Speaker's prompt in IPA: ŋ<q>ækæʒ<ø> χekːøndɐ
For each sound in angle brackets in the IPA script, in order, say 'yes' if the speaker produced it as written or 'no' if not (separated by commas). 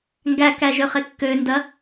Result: no, yes